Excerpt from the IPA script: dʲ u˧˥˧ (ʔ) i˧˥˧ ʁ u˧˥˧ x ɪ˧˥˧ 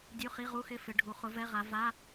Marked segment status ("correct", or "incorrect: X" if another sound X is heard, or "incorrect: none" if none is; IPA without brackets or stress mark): incorrect: χ